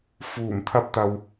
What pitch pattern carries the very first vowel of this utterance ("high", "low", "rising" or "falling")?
low